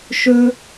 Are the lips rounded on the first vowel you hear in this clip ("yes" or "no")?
yes